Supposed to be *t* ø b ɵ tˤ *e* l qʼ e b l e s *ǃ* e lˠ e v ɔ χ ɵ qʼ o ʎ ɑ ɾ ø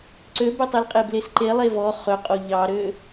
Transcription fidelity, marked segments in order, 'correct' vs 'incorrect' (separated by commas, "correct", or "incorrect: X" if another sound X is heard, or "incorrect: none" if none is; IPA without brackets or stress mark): incorrect: ǀ, correct, correct